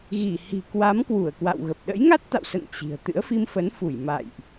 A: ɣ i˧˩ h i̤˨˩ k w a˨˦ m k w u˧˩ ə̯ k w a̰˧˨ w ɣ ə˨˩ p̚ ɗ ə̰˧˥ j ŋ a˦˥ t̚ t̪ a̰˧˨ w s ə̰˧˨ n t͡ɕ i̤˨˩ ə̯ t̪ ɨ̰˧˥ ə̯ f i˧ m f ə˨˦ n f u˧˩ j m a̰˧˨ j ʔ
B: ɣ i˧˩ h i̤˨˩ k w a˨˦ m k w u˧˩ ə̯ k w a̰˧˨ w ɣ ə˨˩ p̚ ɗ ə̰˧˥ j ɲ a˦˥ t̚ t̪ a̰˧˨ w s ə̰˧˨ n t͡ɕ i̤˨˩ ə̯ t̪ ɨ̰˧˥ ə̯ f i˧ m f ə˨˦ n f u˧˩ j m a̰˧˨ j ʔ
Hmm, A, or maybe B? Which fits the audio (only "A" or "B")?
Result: A